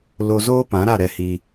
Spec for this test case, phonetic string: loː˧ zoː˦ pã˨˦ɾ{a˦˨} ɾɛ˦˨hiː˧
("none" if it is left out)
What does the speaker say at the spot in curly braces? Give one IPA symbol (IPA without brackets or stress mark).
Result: a˦˨